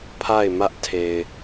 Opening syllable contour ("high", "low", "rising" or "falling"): falling